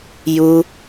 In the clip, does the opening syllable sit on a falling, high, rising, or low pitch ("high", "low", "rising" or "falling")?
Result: high